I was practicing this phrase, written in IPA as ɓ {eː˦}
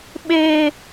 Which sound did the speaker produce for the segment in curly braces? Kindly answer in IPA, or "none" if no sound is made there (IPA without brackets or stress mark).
eː˦